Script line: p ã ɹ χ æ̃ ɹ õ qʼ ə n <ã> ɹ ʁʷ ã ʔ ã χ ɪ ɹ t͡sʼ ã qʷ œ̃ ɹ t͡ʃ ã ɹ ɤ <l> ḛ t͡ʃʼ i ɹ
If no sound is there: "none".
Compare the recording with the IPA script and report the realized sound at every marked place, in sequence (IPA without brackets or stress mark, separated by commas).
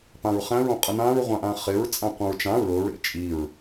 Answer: ã, ɹ